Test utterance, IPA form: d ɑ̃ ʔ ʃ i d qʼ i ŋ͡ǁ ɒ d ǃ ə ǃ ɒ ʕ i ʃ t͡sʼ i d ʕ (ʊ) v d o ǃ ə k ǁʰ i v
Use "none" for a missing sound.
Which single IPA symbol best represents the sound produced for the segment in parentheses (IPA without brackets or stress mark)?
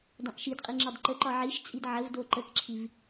ə